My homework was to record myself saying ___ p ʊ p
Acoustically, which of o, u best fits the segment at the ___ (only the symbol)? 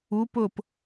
u